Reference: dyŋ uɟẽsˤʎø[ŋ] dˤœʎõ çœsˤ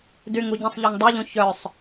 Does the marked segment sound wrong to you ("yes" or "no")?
no